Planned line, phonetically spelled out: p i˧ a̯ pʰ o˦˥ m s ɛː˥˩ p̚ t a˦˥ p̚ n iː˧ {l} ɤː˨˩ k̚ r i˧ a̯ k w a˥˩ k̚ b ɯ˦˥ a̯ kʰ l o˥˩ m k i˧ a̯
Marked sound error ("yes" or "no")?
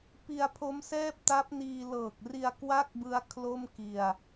no